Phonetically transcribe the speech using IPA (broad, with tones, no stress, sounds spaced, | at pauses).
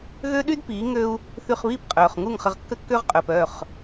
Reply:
ɣ ø˦ ɗ y˦ d p iː˨˦ ŋ ø˧ u̯ | θ y˧ χ β iː˦ p qʼ œː˨ χ ŋ u˦˨ ŋ χ ə˧ ʁ kː ə˦ kː ø˦ ʁ qʼ œː˨ p œ˦˨ χ